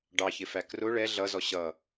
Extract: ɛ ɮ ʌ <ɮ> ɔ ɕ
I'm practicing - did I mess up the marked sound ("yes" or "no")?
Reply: yes